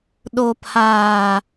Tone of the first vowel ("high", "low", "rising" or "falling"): low